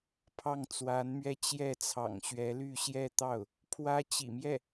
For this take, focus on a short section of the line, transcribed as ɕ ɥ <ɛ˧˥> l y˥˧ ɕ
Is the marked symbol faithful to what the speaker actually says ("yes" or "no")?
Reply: yes